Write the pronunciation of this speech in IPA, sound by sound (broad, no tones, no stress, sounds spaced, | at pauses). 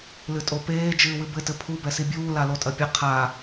l ɨ tʼ o p eː d͡ʒ ɨː w ɨ b ɘ t ɘ pʰ u b ɛ s i bʲ uː l a l o tʼ ɐ pʲ ɘ qʰ a